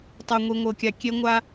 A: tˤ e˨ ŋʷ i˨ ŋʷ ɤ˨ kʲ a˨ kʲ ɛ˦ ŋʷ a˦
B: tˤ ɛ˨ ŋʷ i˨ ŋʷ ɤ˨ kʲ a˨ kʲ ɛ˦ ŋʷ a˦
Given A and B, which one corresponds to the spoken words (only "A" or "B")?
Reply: B